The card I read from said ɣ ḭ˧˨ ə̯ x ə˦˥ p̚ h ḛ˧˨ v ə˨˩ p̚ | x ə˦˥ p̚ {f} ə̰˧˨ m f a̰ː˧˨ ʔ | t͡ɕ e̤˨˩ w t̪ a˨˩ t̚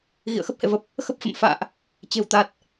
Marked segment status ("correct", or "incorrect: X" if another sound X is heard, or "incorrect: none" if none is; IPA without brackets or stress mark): correct